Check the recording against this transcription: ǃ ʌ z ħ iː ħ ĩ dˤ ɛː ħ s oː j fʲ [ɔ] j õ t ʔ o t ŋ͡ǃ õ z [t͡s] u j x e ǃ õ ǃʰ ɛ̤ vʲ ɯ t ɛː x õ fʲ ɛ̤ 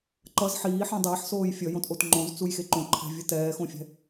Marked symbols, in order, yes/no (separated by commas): no, yes